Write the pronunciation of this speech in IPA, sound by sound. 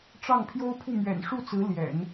ʈ͡ʂ ɑ˥˩ ŋ pʰ j o˥ ʊ̯ pʰ u˥˩ m ɥ ɛ̰˨˩ n ʂ u˥˩ t͡s ɹ̩˧˥ l j ɛ̰˨˩˦ n

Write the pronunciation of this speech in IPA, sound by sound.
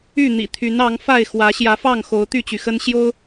y˥˨ n̪ ḭ˨˩ t̪ʰ y˨˦ n ɑ˨˦ ŋ f a˥˨ ɪ̯ x w ä˨˦ ɕ j ä˨˦ f ɑ˥˨ ŋ x o˨˦ ʊ̯ t̪ y˥˨ t͡ɕ y˩ x ə˦ n ɕ j o˦ ʊ̯

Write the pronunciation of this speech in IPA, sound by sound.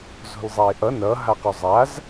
z o̤ l zˤ a e̯ ʔ ʌ n ʌ ɦ a q u zˤ a z

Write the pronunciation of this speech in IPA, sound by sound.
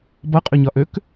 b ʌ qʼ ø ɲ ɒ ʔ ø k

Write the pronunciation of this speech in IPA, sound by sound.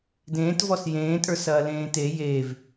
d ẽː t v ɔ s j ẽː tʼ ə˞ s ɐː l ẽː t e j e v

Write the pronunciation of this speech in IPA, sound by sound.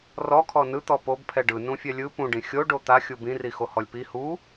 r ɔ kʰ ɔ n ɯ t̪ ɔ p o b pʰ ɛ ɖ ɯ n ũ fʲ ɛ lʲ ɯ p ũ ɖ ĩ xʲ o ɖ o t̪ a xʲ u b ĩ r i x o h ɔ lʲ p i h u

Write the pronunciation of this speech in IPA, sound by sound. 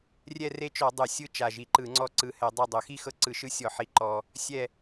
rʲ ɛ˦˨ r e˦˨ t͡ʃ ɔ˧˩˧ dˤ u˧˩˧ sʲ ɯ˦˨ t͡ʃ a˨˩ ʒ i˨˩ ǃ ɯ˧˩˧ ŋ͡ǀ ɔ˦˨ ǀ ɯ˧˩˧ h ɛ˧˩˧ dˤ o˦˨ dˤ o˧˩˧ x i˦˨ x ɤ˦˨ ǀ ɯ˧˩˧ ʃ ɯ˦˨ sʲ ɔ˧˩˧ ħ i˨˩ ǃ ɔ˨˩ | sʲ ɛ˦˨

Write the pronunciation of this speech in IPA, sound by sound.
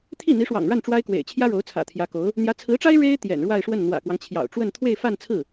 t̪ʰ i˥˩ n̪ i˧˥ ʂ w ɑ̰˨˩ ŋ ɻ a˥˩ n ʈ͡ʂ w a˥ ɪ̯ k w ḛ˨˩ ɪ̯ t͡ɕʰ j ä˥ ɻ o˧˥ ʊ̯ t͡sʰ ä̰˨˩ t̪ʰ j ä˧˥ k o˧˥ ʊ̯ | n̪ j ä˧˥ t͡sʰ ɹ̩˧˥ ʈ͡ʂ a˥ ɪ̯ ɻ e˥ ɪ̯ t̪ j ɛ̰˨˩ n ɻ w a˥˧ ɪ̯ ʂ w ə˥˩ n n̪ w ä̰˨˩ k w ɑ˦ ŋ t͡ɕʰ j ɑ̰˨˩ ʊ̯ ʈ͡ʂ w ə˥˧ n t̪ʰ w e˥˧ ɪ̯ f a˥˧ n t͡sʰ ɹ̩˥˩

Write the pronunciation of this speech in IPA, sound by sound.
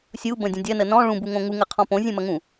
sʲ u b ə̃ dʲ ə̃ dʲ ɐ n ə n ɔ̃ ɭ ũ b u ŋ õ ŋ u ŋ ə qʰ ɔ̃ p õ zʲ ũ m ɐ ŋ ũ

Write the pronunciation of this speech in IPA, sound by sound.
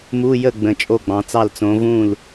m u˧˥˧ j ə˥˩ ɡ͡b ə̃˨˦ t͡ʃʼ o˥˩ ɡ͡b ɑ̃˨˦ t͡s ɑ˥˩ l t͡s õ˨˦ v ũ˥˩ l

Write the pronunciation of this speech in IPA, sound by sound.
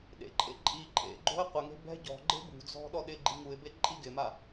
ɗ ḛ ǃʼ ḛ ǃʼ i ǃʼ ḛ ɡ͡ǃ o̤ ɪ̯ qʷ ɪ ŋ e̤ b ɛ̤ ɟ ɔ̤ ɡ͡ǃ e̤ b ṳ d͡z ɔ̤ ɗ ɔ ɗ ɪ ɡ͡ǃ i ŋ u ɪ̯ b e ǃʼ i ɡ ɪ m a

